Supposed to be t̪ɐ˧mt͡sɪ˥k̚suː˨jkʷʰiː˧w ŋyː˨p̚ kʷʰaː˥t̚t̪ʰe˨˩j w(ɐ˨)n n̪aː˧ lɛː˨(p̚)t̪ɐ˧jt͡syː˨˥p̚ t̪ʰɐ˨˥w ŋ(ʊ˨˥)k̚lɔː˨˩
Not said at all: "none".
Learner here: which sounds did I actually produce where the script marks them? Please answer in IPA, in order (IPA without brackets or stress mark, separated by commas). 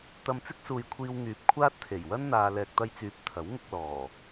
ɐ˥, k̚, ʊ˧